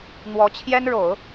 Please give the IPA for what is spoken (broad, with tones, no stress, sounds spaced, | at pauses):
n̪ w ɔ˧˥ t͡ɕʰ j ɛ˥ n ɻ o˨˩˦ ʊ̯